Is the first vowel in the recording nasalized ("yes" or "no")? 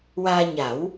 no